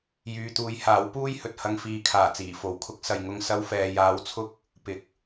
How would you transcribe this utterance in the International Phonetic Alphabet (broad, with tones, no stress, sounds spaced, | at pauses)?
j yː˧ t̪ uː˧ j h aː˨˥ w p uː˥ j h ɵ˨ t̚ h ɐ˧ ŋ f iː˨ kʰ aː˨˩ t͡s iː˨˩ f o˨ w kʰ ʊ˥ k̚ s ɐ˨ j ŋ ʊ˧ ŋ s ɐ˧ w f ɛː˨ j aː˨˧ w t͡sʰ ʊ˥ k̚ | p ɪ˨˥ k̚